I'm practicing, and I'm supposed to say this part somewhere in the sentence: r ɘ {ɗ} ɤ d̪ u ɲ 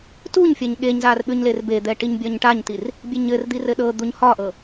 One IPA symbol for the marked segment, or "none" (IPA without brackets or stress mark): ɗ